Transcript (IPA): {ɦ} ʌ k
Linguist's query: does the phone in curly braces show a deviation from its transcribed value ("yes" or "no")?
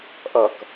yes